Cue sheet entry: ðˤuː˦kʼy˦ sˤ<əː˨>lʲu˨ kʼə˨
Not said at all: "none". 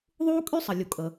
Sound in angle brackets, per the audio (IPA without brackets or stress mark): ə˨